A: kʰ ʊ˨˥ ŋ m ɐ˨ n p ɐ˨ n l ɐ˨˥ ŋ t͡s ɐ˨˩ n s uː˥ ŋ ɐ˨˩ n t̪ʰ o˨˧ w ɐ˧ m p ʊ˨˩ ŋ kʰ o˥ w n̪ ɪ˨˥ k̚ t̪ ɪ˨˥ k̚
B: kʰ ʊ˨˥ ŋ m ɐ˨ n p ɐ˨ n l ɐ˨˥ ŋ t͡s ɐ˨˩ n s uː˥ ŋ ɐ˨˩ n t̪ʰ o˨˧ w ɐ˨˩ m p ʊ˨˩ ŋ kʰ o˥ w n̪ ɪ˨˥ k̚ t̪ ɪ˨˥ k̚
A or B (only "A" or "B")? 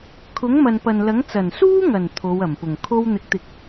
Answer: B